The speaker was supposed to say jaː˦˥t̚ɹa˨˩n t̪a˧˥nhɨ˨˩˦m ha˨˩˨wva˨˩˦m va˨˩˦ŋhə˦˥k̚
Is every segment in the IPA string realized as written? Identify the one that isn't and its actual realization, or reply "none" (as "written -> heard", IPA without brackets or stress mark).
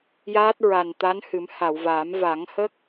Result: none